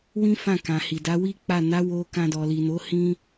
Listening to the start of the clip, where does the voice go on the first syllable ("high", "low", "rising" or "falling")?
high